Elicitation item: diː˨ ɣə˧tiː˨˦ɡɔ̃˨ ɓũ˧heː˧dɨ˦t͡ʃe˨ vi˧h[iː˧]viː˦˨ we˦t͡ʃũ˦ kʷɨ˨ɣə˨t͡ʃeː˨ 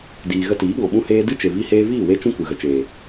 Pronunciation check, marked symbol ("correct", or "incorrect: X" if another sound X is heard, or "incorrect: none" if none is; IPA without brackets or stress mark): incorrect: eː˧